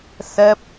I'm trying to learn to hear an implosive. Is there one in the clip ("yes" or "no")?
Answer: no